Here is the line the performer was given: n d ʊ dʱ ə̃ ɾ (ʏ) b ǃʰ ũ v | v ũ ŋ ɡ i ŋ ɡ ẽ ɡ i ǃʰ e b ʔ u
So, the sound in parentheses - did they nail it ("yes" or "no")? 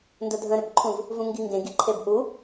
yes